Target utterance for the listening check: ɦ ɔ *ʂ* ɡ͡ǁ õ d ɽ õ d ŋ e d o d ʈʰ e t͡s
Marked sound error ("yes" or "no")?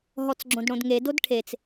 yes